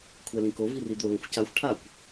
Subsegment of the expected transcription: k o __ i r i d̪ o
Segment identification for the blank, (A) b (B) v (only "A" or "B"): B